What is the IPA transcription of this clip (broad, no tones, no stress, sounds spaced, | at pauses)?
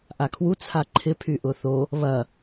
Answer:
ʔ a kʰ w u t͡sʰ a ǃʰ ɪ pʰ y ʔ ʊ θ o | β ɐ